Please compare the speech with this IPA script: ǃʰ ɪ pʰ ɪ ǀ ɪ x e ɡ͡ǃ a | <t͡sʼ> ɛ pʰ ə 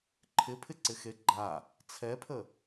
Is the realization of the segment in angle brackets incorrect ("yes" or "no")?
yes